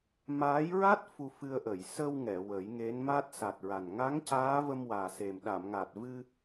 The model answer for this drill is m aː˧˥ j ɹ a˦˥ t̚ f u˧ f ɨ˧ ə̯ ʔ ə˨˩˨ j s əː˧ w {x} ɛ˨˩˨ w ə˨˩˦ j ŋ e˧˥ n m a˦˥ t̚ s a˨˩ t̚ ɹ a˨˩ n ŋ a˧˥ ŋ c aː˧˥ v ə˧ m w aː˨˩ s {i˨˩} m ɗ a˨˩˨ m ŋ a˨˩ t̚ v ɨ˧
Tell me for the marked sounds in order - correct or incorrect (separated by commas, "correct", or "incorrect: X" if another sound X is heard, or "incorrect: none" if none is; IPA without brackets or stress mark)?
incorrect: ŋ, incorrect: e˨˩